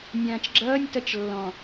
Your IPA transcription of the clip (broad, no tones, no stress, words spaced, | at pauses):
nʲãːt͡ʃɡ͡ǁʌːnʲ tʌt͡ʃlːɔ̃